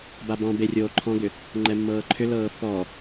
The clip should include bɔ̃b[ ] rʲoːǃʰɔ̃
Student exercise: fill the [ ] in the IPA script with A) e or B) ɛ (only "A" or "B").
A